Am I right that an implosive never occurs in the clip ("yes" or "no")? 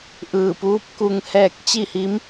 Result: yes